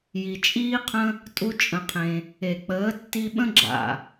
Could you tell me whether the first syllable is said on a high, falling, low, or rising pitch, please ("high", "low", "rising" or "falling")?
low